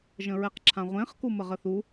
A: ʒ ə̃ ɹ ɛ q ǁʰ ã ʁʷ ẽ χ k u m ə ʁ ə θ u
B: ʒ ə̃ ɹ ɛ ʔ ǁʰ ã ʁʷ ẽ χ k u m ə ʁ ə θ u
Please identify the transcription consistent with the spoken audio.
A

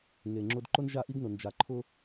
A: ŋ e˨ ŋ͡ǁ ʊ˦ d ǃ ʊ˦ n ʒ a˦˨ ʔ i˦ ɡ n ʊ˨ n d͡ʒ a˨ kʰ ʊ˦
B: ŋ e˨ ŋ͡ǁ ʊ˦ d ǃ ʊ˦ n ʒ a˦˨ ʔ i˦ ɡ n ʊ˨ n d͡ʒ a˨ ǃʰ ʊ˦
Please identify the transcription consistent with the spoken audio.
B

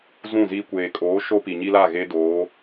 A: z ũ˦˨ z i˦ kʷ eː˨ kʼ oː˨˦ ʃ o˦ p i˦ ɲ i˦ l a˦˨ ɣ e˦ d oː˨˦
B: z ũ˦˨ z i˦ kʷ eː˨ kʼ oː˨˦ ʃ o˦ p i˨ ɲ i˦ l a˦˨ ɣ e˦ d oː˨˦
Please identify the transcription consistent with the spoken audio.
B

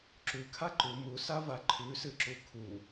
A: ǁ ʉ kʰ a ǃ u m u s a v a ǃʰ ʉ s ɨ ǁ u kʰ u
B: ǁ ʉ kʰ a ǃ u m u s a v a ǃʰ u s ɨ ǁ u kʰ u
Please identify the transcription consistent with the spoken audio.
A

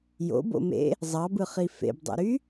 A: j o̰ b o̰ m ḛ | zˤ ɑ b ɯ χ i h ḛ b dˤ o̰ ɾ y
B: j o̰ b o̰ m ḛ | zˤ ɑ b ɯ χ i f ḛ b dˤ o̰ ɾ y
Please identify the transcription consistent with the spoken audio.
B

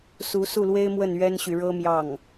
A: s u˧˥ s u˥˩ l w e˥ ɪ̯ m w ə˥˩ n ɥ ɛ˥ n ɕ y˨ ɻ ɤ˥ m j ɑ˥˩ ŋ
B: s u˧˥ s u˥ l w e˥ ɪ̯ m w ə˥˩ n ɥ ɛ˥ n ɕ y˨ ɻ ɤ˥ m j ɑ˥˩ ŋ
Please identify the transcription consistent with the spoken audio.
A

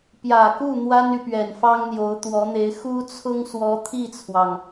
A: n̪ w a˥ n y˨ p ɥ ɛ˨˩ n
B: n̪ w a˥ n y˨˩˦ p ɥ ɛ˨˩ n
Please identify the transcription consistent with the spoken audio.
A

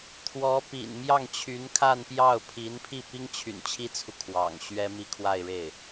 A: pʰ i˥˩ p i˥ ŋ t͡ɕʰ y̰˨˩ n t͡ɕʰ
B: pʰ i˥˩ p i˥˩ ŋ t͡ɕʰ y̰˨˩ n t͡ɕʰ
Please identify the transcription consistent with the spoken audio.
A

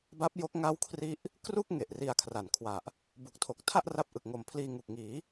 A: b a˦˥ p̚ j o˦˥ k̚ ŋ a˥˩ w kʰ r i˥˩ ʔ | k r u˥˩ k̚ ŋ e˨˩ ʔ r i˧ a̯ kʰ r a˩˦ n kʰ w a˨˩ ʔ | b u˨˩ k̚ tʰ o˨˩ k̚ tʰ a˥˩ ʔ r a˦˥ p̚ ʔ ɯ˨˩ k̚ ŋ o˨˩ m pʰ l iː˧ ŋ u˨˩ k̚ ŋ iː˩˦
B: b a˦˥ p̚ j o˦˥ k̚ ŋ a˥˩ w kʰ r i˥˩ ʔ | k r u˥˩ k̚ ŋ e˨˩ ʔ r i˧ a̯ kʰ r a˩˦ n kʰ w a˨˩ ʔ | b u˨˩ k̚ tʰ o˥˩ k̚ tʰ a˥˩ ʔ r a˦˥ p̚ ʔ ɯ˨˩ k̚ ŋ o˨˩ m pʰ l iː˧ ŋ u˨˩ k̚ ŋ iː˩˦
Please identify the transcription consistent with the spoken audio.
A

